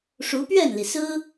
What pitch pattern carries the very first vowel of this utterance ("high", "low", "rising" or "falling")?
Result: rising